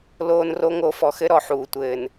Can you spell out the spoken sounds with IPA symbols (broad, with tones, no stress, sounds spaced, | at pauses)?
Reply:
l oː˦ n r o˦ ŋ o˦ f ɔ˨ x ɘ˦ ɾ ɔ˨ ħ uː˨ tʷ ɘː˨ n